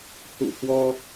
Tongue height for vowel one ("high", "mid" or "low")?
high